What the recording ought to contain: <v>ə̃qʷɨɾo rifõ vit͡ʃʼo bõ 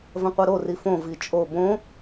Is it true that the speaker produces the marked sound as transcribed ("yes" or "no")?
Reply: yes